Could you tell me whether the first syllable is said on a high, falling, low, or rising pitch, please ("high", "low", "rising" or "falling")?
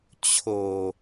low